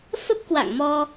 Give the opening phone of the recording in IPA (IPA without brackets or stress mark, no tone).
f